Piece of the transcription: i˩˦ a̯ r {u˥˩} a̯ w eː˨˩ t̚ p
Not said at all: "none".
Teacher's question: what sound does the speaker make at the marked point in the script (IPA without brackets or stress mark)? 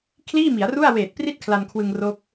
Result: u˥˩